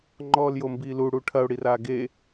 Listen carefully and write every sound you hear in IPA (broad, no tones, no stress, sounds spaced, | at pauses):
ŋ͡ǃ ɔː l j o m b iː l u ɽ u ʈʰ ɐ ʊ̯ ɽ i r aː ɡ e